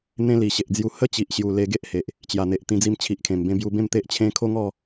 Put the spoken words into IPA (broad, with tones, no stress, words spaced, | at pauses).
n̪ẽ˦li˨˩ ɕe˨ʔd͡zju˧ hə˦t͡ɕi˨ʔɕju˨˩ le˧ɡe˦ʔhe˨ʔ | t͡ɕja˨˩n̪e˨ʔt̪ĩ˧ d͡zi˧mt͡ɕʰi˨ʔkʰẽ˨˩mbẽ˧ bju˧bẽ˥˧m t̪e˦ʔt͡ɕʰẽ˦ kʰo˦ŋɔ˥˧